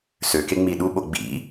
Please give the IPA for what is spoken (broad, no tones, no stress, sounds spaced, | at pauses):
s ø k e ŋ͡m i ɗ u ɓ o ɡ͡b ḭ